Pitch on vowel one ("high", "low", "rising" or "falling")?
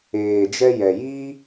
low